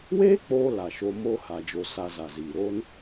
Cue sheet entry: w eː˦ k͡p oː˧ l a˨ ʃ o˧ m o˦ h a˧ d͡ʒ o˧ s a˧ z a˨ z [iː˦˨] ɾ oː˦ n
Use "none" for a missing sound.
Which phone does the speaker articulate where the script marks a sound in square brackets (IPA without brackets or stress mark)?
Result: iː˨